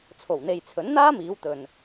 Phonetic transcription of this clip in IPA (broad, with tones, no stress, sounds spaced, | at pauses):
t͡sʰ o˨˩ w n̪ e˨ j t͡sʰ ɵ˨˥ n n̪ aː˥ m iː˨˧ w t̪ ɵ˨ n